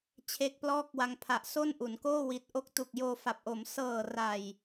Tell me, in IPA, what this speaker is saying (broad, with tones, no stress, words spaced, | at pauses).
t͡ɕʰe˦˥k̚plɔː˥˩k̚wa˧ŋ pʰa˨˩ʔso˥˩nʔu˩˦nkoː˥˩ wi˨˩t̚ʔo˦˥k̚tu˨˩k̚ joː˧fa˨˩p̚ʔo˩˦m sɤː˨˩ra˨˩j